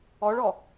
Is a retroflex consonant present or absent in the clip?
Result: present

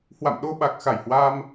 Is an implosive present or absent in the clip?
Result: present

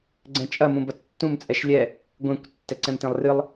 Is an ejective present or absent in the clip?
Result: present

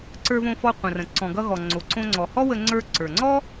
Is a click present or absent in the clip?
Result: present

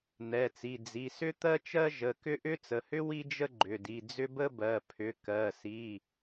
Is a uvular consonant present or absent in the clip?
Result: absent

